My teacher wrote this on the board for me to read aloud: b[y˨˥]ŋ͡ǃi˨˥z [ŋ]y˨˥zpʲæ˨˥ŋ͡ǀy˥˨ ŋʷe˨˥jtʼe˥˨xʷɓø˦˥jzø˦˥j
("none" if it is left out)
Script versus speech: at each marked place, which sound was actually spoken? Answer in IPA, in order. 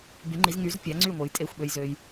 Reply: y˨˥, ŋ

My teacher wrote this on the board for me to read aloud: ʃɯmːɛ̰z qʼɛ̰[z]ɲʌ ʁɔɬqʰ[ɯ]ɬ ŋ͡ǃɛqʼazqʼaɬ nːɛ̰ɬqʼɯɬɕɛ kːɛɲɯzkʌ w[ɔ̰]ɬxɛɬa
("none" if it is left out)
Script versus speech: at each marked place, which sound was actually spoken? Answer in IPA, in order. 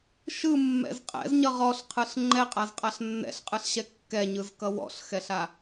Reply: z, ɯ, ɔ̰

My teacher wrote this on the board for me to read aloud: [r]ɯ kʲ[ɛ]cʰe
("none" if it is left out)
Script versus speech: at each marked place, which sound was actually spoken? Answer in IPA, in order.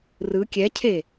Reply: r, ɛ

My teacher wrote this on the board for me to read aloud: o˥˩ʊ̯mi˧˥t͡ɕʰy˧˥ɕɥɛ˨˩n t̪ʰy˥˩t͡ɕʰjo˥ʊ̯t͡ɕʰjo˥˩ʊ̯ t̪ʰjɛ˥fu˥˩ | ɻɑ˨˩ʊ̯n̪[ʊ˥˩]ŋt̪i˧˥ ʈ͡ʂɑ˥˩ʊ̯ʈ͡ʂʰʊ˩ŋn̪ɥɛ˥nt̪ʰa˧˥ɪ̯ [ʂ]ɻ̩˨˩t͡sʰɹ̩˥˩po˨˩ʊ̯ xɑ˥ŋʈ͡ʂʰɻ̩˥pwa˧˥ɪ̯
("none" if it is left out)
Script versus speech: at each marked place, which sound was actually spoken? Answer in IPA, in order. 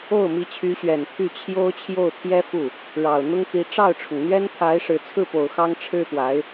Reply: ʊ˥, ʂ

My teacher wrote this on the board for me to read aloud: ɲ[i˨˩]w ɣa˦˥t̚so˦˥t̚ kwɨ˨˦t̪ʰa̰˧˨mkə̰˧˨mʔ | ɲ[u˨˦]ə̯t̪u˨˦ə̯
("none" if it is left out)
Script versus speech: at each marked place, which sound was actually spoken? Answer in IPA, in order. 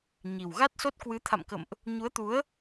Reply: i˨˩, u˨˦

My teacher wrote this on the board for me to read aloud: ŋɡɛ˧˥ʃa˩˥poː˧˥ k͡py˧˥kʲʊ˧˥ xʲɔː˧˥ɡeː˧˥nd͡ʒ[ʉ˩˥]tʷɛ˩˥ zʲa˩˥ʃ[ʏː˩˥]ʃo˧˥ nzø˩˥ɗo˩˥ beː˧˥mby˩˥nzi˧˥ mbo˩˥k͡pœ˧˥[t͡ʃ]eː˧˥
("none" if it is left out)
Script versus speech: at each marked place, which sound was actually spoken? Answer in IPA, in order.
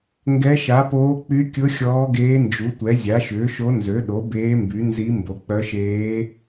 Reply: u˩˥, ʏː˩˥, ʃ

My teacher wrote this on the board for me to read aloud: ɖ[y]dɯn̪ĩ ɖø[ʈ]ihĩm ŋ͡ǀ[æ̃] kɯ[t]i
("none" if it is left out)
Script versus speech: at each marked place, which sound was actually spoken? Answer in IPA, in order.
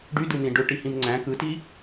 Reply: y, ʈ, æ̃, t

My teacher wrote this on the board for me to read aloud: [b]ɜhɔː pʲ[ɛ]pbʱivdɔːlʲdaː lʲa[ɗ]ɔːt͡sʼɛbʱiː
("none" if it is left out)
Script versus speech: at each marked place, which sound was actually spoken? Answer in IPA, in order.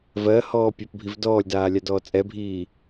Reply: v, ɜ, d

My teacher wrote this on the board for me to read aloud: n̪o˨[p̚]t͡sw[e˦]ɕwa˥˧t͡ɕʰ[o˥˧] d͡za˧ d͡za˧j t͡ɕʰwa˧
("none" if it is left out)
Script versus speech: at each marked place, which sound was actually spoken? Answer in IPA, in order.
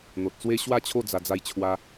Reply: t̚, e˦, o˥˧

